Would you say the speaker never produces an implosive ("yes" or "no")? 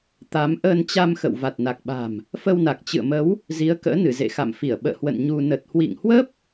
no